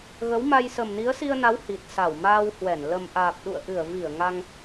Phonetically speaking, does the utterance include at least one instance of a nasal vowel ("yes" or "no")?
no